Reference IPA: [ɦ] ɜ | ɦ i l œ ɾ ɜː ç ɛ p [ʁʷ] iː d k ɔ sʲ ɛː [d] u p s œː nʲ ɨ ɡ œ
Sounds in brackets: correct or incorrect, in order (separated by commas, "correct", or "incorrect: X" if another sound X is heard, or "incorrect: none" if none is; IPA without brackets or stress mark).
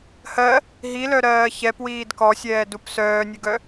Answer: incorrect: h, incorrect: w, correct